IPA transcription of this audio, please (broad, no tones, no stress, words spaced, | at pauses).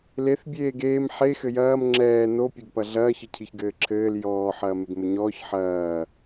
leθ bʲeːɡeːm ħe xɘjɐːm ŋ͡ǁɛː no pʲeɡpɐɮɐː çɘcʰiçɡɘːǁʰɘːl jɔː ħɐːmeɡmɘɲɔːç ħɐː